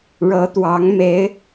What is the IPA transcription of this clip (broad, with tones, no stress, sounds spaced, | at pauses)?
ɻ ɤ˧˥ t̪ w ɑ˧˥ ŋ m e˧˥ ɪ̯